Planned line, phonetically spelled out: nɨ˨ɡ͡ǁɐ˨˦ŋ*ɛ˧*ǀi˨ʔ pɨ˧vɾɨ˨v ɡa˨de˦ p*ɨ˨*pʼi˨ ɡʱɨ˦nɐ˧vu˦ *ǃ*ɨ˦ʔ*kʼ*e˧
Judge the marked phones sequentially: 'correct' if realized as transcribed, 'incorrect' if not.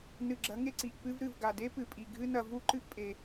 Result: incorrect: e˧, correct, correct, incorrect: pʼ

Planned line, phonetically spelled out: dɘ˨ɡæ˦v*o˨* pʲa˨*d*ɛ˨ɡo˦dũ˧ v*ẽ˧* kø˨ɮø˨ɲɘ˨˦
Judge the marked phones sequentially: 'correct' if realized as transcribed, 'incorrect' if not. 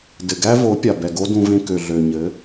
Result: incorrect: o˨˦, incorrect: b, correct

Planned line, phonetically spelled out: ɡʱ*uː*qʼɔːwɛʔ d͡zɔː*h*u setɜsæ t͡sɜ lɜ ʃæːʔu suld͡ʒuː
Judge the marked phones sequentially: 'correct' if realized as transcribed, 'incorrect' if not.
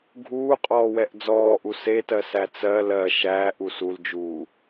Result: correct, incorrect: ʔ

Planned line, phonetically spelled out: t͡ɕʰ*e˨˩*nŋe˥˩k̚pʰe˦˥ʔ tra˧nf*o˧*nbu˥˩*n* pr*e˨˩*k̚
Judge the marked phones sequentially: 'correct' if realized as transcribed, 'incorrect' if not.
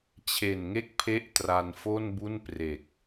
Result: correct, incorrect: o˥˩, correct, correct

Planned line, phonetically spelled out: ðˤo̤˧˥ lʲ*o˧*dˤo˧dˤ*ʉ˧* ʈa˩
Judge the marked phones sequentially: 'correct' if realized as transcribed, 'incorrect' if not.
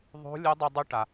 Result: incorrect: o˧˥, correct

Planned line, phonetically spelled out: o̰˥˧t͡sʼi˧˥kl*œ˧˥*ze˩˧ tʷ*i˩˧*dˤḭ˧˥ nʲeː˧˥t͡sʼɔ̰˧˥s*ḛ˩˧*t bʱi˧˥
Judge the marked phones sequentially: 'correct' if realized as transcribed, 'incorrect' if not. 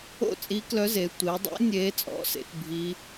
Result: correct, correct, correct

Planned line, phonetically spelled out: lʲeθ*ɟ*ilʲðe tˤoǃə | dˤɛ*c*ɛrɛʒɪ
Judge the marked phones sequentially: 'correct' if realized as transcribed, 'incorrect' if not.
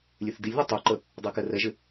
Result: incorrect: d, incorrect: k

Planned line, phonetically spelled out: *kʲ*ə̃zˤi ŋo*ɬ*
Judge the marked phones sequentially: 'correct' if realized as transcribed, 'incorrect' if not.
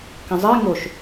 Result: incorrect: k, incorrect: ʃ

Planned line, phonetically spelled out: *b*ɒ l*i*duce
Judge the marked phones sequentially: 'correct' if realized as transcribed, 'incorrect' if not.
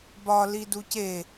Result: correct, correct

